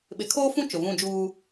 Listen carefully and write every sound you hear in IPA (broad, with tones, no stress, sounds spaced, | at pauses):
ɓ ɪ˨ kʰ oː˦ f ũ˦ t͡ʃ ʊ˨ v ũ˦˨ d͡ʒ uː˦